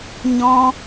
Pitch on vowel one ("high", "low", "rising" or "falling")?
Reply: high